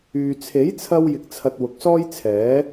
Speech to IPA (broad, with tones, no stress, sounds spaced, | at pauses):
yː˨ t͡sʰ e˨˥ j t͡sʰ ɐ˧ w j ɪ˨ k̚ t͡sʰ ɐ˨ t̚ w ʊ˨ k̚ s ɔː˥ j t͡sʰ ɛː˨˥